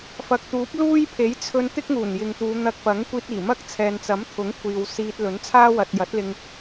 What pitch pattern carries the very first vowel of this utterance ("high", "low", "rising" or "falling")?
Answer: low